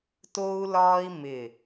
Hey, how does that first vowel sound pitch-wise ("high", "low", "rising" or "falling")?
high